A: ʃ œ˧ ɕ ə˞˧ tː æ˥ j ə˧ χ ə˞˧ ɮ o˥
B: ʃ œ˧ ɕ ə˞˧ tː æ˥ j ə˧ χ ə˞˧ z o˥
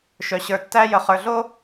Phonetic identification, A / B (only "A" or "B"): A